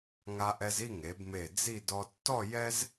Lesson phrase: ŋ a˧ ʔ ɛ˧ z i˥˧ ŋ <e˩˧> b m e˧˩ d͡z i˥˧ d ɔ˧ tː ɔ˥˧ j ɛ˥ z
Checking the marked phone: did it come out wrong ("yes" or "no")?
no